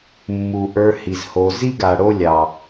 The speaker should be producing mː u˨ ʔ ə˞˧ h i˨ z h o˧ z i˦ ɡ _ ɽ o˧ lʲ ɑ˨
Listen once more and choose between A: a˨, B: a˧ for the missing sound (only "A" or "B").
A